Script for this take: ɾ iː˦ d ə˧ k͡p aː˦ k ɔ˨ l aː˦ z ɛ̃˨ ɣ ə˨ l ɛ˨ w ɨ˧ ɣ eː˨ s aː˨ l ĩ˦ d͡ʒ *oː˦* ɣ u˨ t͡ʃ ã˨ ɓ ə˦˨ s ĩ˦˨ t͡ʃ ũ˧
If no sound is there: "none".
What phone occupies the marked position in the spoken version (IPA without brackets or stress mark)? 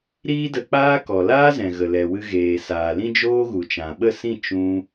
oː˦